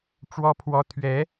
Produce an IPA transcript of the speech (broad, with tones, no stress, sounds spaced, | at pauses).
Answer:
ʈ͡ʂ w ɔ˥ pʰ w ɔ˥ t̪ʰ ɥ ɛ˧˥